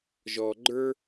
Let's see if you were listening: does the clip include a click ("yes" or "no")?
yes